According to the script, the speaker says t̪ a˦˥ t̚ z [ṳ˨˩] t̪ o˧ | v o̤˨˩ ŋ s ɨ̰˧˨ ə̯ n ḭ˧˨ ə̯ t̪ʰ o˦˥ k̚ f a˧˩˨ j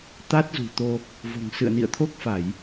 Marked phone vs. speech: correct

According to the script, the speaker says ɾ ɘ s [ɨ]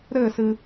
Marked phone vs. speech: correct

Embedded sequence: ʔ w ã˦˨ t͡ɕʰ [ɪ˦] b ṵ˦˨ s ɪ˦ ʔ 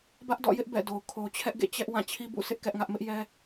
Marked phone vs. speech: incorrect: i˦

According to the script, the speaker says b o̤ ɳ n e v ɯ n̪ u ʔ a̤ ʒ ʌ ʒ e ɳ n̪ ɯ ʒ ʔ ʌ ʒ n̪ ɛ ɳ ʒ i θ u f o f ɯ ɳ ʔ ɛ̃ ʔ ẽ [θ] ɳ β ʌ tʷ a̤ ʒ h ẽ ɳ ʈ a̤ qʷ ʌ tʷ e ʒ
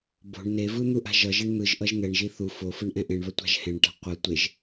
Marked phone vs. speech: incorrect: none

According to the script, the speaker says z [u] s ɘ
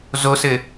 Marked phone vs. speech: incorrect: o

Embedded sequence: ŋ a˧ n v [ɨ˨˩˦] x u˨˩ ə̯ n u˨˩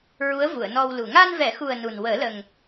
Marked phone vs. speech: incorrect: ɛ˨˩˦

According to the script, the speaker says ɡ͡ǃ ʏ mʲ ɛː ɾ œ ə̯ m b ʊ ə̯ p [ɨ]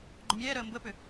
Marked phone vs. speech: incorrect: ʏ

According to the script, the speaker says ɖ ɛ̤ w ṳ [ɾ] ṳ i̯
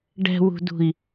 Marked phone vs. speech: incorrect: d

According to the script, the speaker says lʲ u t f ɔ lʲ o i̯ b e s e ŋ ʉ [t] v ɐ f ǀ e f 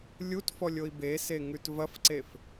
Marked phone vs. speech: correct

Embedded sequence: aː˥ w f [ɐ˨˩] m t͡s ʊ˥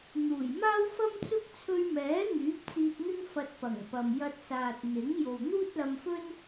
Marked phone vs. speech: incorrect: ɐ˥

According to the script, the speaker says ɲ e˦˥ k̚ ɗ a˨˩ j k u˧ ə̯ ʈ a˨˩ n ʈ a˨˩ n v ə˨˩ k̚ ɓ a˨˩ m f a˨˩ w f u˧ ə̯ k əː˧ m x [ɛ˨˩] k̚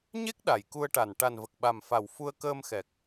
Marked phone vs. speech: correct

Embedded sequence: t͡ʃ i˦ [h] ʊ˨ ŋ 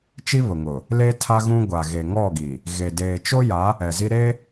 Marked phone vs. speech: incorrect: β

